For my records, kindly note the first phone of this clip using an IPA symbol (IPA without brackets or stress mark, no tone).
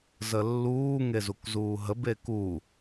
z